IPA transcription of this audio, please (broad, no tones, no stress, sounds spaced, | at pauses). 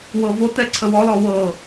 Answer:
w ɤ v o t ɛ ǀʰ ə w ɔ l ɔ w ɤ